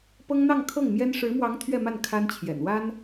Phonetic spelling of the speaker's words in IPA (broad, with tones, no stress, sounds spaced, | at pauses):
p ɤ˥ ŋ n̪ ɑ˥˧ ŋ kʰ ɤ˥˩ ŋ m j ɛ˥ n ʂ ɻ̩˧˥ m w ɑ˧˥ ŋ t̪ʰ ɥ ɛ˥˧ m a˥˩ n kʰ a˥ n t͡ɕʰ j ɛ̰˨˩ n w a˥ n